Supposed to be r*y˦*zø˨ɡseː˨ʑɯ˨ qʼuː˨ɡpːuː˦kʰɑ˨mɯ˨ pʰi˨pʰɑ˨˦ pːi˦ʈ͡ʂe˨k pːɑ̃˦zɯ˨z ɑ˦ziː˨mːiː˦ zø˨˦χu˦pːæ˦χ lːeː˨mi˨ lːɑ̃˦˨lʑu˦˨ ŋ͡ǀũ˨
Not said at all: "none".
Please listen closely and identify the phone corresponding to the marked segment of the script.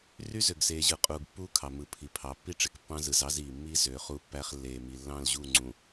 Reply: y˦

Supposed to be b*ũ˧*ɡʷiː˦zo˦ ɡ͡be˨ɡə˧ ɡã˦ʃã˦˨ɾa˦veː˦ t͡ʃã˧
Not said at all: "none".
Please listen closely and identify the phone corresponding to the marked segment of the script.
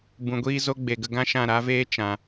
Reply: ũ˧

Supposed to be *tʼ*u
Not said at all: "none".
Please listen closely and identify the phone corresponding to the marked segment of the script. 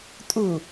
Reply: tʼ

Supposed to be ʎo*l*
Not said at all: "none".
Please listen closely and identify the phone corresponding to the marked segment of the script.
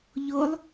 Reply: lˠ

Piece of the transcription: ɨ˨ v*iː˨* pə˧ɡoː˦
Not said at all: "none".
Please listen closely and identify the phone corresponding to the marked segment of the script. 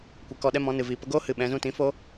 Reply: iː˨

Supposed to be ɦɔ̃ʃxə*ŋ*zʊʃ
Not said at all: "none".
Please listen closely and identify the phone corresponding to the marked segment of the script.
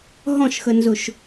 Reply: n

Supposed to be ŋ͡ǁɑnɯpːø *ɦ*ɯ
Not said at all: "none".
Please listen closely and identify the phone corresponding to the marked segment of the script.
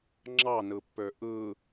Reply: ʔ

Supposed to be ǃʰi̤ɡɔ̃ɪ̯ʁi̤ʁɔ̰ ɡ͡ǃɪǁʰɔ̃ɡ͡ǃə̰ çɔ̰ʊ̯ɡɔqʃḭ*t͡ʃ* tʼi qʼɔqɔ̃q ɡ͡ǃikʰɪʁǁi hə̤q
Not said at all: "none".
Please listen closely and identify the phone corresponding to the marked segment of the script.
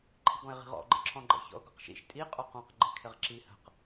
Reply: ʃ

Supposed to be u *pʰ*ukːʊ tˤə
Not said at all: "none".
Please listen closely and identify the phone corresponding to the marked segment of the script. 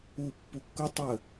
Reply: pː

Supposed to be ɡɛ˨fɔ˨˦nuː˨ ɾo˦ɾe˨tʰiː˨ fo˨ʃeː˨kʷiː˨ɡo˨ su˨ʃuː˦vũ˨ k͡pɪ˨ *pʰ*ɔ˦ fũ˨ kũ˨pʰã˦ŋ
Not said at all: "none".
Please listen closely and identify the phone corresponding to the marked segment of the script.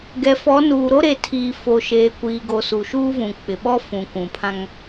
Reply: ɓ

